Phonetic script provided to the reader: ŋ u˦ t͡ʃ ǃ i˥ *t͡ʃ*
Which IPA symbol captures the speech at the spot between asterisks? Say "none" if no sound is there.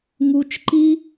none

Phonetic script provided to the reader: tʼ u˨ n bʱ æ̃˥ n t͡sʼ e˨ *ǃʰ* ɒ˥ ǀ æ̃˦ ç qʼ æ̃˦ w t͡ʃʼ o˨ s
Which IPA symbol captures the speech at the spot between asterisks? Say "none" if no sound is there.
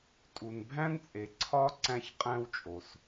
ǀʰ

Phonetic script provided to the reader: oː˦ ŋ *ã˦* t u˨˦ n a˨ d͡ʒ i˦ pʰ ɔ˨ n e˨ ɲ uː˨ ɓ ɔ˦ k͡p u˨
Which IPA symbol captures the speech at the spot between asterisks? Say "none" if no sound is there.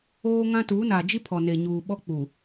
ã˦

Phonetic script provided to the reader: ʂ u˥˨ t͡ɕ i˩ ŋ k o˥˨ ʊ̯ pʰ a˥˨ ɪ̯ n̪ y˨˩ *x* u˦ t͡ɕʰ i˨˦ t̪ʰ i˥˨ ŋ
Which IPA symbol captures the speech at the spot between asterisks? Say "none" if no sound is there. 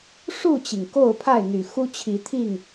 x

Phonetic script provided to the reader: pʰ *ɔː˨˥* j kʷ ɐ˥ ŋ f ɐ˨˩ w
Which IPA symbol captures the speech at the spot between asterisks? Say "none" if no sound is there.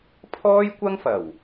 ɔː˥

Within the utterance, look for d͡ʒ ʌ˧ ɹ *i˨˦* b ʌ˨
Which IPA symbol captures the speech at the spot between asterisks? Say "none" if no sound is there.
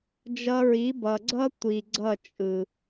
i˨˦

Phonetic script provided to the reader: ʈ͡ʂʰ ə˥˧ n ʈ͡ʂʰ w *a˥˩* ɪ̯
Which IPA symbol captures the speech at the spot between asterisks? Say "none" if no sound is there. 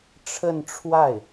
a˥˩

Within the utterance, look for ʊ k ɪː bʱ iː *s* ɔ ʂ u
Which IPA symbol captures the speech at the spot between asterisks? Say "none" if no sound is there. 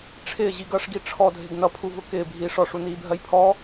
ʂ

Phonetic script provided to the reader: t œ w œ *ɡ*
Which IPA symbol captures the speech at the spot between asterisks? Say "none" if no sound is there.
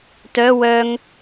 ŋ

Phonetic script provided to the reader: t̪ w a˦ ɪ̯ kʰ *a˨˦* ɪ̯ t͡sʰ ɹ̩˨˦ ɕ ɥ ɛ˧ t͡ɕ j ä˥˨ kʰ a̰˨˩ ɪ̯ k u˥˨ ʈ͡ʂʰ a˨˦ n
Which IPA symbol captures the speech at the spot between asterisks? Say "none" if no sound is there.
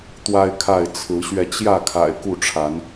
a˥˨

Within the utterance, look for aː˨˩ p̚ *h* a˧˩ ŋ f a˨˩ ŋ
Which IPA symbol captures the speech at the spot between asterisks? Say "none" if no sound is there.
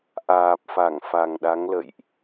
f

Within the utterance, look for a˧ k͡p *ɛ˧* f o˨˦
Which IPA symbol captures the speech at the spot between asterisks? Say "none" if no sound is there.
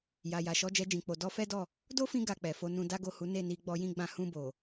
ɛ˨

